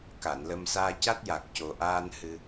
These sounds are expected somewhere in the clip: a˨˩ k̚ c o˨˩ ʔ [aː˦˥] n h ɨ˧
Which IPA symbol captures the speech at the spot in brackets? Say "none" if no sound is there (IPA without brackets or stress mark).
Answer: aː˧